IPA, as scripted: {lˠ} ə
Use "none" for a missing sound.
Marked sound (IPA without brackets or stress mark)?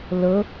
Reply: l